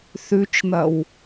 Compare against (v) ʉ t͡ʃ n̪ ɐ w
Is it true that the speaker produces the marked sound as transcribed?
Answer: no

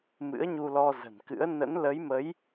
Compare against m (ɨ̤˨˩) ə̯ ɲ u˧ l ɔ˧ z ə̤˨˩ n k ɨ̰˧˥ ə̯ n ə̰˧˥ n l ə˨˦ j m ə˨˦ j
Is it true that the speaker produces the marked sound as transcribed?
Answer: no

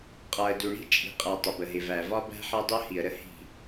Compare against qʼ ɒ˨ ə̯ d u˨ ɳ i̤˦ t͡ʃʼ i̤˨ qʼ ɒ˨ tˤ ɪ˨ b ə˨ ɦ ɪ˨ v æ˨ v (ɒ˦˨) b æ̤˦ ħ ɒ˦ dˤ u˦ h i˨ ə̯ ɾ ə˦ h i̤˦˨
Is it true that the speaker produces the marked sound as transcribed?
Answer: no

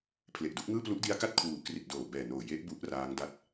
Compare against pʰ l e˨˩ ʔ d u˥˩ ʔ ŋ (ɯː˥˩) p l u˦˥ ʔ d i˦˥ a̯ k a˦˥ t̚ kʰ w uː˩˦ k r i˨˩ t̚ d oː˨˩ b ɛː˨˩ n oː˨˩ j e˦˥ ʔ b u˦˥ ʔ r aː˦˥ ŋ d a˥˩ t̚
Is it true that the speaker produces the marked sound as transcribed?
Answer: yes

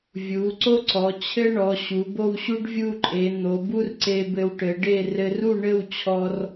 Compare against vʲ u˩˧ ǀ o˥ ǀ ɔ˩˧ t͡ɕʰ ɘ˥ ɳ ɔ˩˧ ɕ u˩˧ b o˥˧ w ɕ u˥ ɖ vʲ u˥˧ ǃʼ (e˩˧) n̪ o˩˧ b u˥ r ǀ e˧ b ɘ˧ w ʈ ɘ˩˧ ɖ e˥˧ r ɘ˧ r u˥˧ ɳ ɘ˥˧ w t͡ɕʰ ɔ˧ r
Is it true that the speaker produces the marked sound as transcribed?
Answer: yes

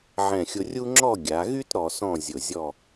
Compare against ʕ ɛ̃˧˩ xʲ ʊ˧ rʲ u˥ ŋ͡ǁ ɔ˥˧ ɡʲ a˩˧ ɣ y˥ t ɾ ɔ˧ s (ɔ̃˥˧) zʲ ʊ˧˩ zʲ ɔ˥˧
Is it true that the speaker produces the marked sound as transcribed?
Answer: yes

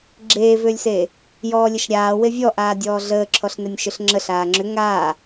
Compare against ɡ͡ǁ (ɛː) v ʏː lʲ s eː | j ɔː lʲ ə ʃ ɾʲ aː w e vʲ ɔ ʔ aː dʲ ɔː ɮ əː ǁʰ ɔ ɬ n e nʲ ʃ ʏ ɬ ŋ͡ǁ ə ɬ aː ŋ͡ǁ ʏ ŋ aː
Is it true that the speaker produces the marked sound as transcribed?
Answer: no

